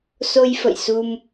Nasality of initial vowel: oral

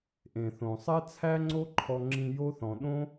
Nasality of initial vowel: nasal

